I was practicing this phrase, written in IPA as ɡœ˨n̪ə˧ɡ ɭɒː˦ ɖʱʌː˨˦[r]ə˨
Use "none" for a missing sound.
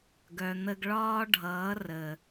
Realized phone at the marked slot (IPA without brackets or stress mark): r